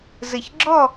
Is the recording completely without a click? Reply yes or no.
no